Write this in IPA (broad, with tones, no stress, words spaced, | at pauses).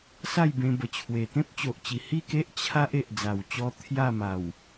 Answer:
sa˥˧jbẽ˧bə˨˩ t͡ɕʰwe˨˩t̪ẽ˦p̚t͡ɕo˨ʔt͡ɕi˨˩ hi˥˧ke˦ʔ t͡ɕʰa˦ʔ e˨ʔd͡za˨˩wt͡ɕɔ˧ t̪ʰja˥˧ma˨˩w